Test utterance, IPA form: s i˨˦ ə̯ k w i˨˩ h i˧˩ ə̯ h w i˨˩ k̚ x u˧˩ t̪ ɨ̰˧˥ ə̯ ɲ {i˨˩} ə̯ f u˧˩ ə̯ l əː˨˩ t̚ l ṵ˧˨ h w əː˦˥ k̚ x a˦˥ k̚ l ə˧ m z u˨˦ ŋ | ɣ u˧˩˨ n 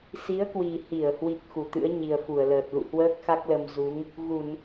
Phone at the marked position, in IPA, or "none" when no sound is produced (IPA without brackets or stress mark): i˨˩